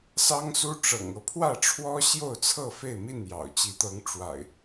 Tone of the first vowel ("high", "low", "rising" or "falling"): high